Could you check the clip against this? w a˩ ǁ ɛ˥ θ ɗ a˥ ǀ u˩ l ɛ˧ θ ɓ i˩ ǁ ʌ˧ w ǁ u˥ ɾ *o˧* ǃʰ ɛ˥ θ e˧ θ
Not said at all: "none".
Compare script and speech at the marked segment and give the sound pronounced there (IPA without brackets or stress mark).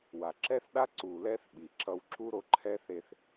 o˧